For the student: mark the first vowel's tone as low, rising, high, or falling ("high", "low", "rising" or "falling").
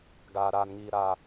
low